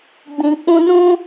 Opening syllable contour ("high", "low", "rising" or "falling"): low